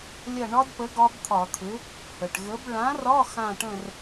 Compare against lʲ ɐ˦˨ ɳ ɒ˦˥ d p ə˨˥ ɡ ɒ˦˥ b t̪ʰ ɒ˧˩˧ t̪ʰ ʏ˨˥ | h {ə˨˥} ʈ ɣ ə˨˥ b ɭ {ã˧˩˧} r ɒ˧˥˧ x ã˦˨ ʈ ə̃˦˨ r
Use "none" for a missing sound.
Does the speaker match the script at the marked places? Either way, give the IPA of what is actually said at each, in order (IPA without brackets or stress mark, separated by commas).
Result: ə˩, ã˨˥